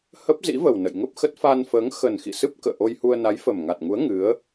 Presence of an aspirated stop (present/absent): absent